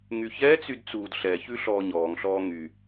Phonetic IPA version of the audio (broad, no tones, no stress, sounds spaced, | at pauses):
ŋ y ç ɛ t͡s y d t͡s uː d ɬ ɛ ç ʉ ɬ ɔː ɲ ɔː ŋ ɬ ɔː ŋ y